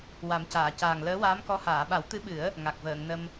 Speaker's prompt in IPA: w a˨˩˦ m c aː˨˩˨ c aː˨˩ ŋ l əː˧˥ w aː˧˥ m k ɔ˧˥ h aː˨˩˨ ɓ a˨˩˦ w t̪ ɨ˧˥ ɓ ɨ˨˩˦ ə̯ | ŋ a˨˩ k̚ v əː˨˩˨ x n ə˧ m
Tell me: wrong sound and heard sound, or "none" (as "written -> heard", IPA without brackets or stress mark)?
x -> ŋ